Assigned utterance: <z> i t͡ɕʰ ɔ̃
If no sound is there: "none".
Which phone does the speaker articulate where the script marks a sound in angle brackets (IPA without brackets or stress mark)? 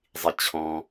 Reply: zˤ